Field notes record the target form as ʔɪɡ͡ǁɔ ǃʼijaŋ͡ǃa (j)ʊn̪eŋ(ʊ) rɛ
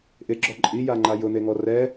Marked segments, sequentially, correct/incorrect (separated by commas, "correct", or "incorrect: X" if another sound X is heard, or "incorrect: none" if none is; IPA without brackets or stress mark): correct, incorrect: ɔ